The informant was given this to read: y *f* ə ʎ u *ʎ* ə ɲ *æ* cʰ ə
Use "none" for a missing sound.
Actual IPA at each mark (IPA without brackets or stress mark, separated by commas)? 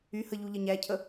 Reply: h, ʎ, æ